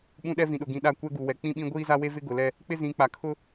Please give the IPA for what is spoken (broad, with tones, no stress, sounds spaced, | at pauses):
ɓ ũ˦ ɗ ɛ˦ v ĩ˨ ɗ ʊ˨ ɡ ĩ˨ ɗ a˦˨ kʷ ɛ˦ ɡ u˨ w ɛ˨ k͡p ĩ˦ ɓ ĩ˦ ɡʷ iː˦ z a˦ w e˦ v ɪ˦ ɡ ʊ˨ l ɛ˦ | k͡p ɪ˦ z ĩ˨˦ k͡p a˨ kʰ ʊ˦